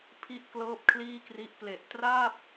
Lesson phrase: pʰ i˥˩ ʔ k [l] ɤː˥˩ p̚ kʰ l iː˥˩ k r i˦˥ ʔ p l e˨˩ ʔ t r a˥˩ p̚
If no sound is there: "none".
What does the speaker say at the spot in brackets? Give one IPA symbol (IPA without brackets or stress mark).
l